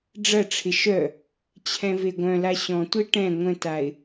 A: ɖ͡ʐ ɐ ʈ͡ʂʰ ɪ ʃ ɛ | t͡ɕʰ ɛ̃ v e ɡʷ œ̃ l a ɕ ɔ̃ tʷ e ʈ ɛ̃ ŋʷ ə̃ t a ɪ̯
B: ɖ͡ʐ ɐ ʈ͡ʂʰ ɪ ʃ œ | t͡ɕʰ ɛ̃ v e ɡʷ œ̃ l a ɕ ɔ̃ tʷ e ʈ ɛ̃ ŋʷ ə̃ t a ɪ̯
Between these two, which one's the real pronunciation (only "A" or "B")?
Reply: B